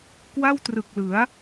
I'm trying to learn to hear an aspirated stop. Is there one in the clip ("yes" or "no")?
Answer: no